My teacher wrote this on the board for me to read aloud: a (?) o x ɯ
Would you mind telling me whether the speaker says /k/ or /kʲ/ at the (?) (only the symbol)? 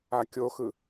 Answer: kʲ